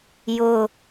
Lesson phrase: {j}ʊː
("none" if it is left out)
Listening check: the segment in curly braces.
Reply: j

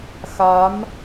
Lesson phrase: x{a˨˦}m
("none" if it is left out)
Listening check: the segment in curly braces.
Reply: a˨˦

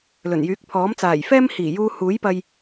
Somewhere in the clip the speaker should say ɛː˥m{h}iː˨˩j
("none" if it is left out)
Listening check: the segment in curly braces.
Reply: h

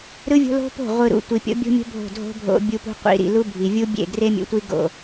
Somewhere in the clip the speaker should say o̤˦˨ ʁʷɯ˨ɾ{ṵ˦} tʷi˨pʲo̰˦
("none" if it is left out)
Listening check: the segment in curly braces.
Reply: ṵ˨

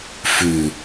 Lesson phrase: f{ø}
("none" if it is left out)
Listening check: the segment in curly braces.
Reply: ʉ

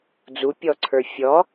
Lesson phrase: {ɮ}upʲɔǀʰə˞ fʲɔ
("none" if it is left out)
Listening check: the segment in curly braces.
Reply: d͡z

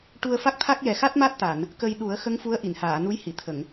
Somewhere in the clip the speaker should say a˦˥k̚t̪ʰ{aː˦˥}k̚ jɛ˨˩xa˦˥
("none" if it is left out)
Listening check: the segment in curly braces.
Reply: a˦˥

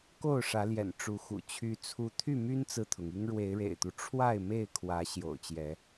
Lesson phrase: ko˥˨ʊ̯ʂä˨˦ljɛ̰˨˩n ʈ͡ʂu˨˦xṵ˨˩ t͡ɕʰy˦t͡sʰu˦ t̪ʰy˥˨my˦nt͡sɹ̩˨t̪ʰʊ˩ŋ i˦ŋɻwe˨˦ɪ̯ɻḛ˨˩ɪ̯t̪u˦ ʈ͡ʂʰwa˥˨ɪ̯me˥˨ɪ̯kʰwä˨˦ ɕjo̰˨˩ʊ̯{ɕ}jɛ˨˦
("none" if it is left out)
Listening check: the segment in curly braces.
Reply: t͡ɕ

